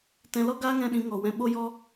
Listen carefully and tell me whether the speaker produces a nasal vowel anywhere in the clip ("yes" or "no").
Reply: yes